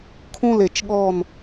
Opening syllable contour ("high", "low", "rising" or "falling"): falling